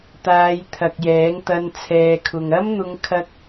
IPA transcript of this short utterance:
t̪ aː˨˧ j t̪ʰ ɐ˨ k̚ j ɛː˨˥ ŋ t̪ ɐ˧ n t͡sʰ ɛː˨ kʰ ʊ˨ ŋ ɐ˥ m n̪ ʊ˧ ŋ kʰ ɐ˥ k̚

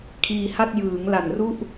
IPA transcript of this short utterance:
kʰ iː˧ h a˥˩ t̚ j ɯː˩˦ ŋ l a˨˩ n r u˥˩ ʔ

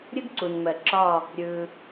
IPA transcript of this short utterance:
ɾʲ ə˥ ɡ ǀ u˩ n m ɜ˩ ǁ ɒ˧˩ | ɾʲ ɯ˩

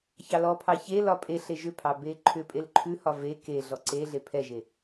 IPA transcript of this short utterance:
ç ɑ l ɔ pʰ ɑ ç e l ɒ pʼ e ɬ e ʒ ʏ pʰ ɑ b e ǃʰ ʏ pʼ e l ǃʰ ʉ h ɒ v e k e ɮ ɔ ǀ e ɮ e pʰ ɛ ʒ e

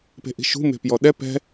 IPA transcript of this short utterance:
p e̤ ʔ i̤ ʃ ṳ m e̤ p j ɔ ɗ ɛ p ɛ̤

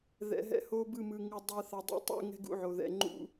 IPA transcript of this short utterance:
ð ɛ̰˨ ɦ ɛ̰˧ h o˧ b ɯ˦˨ m ɯ˨ ŋ u˨ dˤ ɛ˧ θ a˨ dˤ ɛ̰˧ tˤ ṵ˦˨ ŋ ɛ̤˧ ɡ ṵ˦ ʕ o˨ ð ɛ̰˨ ŋ͡ǃ ṵ˧

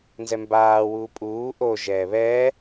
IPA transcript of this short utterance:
n z ɛ m b aː w uː pʼ uː ʔ o ʒ ɛː β ɛː

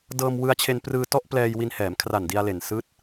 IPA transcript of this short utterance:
d ɤː˧ m w ɯ˧ a̯ t͡ɕʰ e˧ n p r ɯː˧ t ɔ˥˩ ʔ p l ɛː˧ j w i˧ n h ɛː˩˦ m kʰ r a˨˩ n d i˧ a̯ l e˨˩ n s ɯː˦˥ t̚

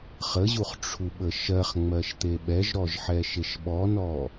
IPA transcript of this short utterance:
χ ə ʑ u χ ʈ͡ʂʰ u ɓ ə ʃ ɜ χ ŋ͡m ɜ ʃ t̪ e ɓ ɛ ʒ ɾ ɔ ʒ ħ ɛ ʃ e ʃ ɓ ɔ n ɔ

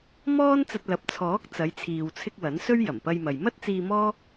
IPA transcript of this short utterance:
m ɔː˥ n t͡s ɐ˧ t̚ l ɐ˨ p̚ t͡sʰ ɔː˨˥ k̚ t͡s ɐ˨˧ j t͡sʰ iː˨ w t͡sʰ ɪ˧ k̚ w ɐ˨˥ n s ɵ˥ ɥ j ɐ˨˩ m p ɐ˧ j m ɐ˨ j m ɐ˥ t̚ t͡s iː˧ m ɔː˥

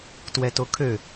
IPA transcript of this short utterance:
t w ɛ t o kʰ ø

